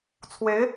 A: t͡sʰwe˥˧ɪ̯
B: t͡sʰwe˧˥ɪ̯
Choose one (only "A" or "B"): B